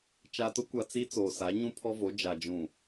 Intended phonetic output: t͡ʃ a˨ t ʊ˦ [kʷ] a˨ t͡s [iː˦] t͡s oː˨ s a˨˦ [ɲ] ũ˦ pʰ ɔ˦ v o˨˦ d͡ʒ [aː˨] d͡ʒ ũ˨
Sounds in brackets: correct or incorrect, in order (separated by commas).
correct, incorrect, correct, incorrect